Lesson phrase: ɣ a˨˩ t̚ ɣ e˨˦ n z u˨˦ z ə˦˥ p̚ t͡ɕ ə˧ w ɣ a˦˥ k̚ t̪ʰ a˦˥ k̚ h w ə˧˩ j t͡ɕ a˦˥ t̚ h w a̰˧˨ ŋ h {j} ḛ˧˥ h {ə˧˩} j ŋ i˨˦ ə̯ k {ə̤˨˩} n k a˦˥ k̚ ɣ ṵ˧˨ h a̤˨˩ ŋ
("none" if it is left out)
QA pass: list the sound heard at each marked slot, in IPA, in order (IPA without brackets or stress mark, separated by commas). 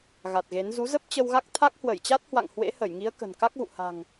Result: w, ə˧˩, ə̤˨˩